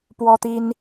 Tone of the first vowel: high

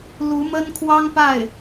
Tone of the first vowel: rising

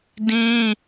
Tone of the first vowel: high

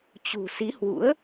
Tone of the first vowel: low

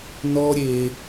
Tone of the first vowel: high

